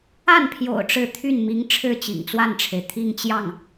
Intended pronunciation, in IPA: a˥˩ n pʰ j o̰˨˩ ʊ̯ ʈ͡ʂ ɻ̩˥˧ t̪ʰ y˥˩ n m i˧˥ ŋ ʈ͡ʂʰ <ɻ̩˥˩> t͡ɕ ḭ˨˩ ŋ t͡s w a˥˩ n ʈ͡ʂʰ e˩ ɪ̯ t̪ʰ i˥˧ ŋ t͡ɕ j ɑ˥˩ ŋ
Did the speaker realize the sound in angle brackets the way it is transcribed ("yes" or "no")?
yes